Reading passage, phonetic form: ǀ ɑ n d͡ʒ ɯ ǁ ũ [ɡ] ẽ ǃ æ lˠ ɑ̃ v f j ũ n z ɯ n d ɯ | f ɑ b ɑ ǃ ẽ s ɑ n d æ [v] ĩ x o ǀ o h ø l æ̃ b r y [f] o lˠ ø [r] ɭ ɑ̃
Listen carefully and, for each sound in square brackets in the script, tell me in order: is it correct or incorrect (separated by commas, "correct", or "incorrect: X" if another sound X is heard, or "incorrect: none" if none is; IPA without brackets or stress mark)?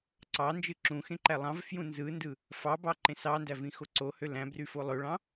incorrect: x, correct, correct, incorrect: none